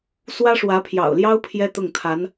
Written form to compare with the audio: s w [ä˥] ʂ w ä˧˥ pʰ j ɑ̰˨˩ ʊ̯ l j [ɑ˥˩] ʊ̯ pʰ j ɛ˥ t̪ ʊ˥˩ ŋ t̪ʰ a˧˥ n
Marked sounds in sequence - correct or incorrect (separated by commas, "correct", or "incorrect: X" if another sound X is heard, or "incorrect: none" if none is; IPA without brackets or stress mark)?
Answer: correct, incorrect: ɑ˥